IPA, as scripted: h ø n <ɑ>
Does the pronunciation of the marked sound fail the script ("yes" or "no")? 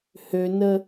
yes